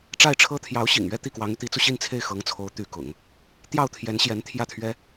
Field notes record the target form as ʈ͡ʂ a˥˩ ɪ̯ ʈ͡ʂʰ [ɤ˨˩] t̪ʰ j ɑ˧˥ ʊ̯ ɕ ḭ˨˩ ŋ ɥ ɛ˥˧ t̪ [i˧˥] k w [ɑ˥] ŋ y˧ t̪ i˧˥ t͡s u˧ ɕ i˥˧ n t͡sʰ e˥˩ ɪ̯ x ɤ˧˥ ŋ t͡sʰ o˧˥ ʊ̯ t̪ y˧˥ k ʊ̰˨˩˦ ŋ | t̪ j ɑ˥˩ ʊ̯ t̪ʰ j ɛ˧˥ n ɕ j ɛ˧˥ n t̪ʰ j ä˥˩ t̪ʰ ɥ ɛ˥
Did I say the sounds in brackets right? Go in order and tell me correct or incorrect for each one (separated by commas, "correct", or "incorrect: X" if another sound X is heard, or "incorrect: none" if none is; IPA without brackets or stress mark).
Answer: incorrect: ɤ˥, incorrect: i˥˩, incorrect: ɑ˧˥